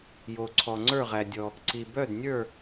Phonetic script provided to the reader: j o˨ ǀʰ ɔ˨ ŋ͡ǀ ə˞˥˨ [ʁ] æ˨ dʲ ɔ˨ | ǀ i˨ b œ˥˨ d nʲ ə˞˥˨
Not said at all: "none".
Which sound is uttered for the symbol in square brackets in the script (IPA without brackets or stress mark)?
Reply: ʁ